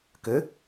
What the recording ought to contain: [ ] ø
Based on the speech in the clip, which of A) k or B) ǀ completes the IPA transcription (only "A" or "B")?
A